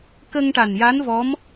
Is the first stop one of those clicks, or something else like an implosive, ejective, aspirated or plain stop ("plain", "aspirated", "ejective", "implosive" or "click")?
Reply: plain